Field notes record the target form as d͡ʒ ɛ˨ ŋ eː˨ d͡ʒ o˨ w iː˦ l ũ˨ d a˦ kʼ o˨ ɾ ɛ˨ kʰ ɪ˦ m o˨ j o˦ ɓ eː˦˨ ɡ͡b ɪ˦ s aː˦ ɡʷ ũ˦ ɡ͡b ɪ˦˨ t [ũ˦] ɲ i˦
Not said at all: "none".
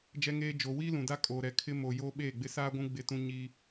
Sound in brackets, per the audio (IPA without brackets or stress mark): ũ˦